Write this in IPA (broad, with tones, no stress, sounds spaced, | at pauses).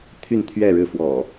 t̪ʰ y˥˨ n t̪ʰ ɥ ɛ˥˨ ɻ ɻ̩˥˨ f w ɔ̰˨˩